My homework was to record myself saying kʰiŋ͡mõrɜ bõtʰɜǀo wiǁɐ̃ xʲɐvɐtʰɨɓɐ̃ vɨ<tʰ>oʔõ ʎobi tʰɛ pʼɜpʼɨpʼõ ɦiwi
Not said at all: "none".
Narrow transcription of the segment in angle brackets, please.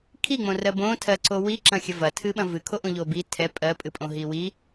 kʰ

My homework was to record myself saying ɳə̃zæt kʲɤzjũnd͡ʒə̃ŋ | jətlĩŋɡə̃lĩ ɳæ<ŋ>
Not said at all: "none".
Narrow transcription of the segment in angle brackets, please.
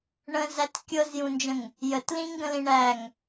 ŋ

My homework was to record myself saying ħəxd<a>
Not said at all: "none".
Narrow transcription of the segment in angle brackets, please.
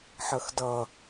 ʌ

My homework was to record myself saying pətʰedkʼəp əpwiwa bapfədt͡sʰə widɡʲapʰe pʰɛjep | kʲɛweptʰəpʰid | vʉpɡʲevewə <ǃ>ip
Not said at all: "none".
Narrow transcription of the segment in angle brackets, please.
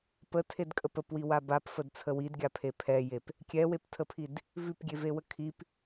kʰ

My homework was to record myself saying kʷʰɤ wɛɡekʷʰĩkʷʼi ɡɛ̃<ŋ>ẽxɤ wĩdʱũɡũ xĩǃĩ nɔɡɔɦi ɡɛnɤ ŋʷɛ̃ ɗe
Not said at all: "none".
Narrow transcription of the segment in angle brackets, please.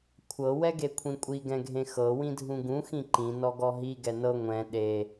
ɡʱ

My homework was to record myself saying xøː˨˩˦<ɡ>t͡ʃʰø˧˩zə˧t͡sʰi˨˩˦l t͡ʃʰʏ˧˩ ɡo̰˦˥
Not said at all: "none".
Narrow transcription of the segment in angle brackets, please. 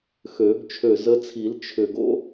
ɡ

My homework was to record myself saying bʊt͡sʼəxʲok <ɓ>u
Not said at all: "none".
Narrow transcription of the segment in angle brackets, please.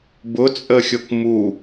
m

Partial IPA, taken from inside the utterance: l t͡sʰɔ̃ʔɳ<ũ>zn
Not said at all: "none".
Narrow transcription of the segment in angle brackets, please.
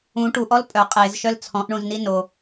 ũ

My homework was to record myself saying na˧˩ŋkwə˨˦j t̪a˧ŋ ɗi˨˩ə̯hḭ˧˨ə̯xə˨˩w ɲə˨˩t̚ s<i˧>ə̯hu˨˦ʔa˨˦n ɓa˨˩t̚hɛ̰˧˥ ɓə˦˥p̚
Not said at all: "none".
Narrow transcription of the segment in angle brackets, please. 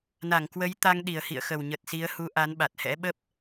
i˨˦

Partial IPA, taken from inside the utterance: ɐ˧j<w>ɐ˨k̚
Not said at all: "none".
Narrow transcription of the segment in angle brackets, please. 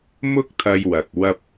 w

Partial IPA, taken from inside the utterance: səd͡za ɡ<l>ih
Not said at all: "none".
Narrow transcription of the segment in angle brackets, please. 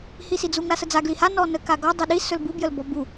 l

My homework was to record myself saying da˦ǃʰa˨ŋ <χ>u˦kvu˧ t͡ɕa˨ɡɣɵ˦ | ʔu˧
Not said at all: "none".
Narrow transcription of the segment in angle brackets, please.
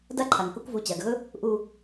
k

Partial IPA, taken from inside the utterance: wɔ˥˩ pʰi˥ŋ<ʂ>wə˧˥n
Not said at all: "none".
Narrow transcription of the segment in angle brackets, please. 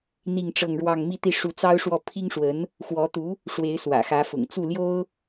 ʂ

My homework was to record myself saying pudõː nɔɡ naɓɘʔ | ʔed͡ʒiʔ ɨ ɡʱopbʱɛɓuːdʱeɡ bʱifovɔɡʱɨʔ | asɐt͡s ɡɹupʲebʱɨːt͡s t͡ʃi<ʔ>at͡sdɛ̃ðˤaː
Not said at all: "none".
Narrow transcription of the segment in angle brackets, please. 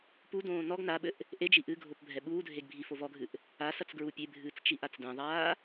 ʔ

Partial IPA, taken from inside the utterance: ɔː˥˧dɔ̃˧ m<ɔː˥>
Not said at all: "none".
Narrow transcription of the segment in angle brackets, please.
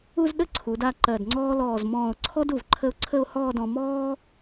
ɔː˥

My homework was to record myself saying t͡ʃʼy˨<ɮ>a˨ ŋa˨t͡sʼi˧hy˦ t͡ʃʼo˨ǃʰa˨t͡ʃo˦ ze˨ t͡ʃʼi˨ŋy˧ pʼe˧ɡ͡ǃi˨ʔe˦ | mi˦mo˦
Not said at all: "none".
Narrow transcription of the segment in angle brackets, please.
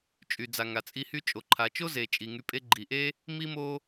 d͡z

